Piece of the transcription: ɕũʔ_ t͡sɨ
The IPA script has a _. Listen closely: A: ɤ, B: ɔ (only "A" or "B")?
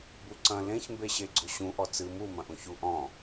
B